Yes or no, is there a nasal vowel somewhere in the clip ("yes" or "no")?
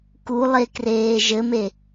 no